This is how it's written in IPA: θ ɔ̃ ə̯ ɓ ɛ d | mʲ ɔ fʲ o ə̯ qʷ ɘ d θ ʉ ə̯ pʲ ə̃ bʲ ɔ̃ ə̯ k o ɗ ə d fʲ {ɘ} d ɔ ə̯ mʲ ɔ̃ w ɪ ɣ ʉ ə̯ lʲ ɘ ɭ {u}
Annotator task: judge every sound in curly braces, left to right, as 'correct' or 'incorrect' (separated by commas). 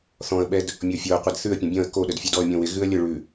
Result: incorrect, incorrect